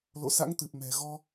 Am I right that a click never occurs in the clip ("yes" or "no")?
yes